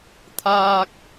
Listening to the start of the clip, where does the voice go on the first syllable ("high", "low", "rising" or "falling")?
high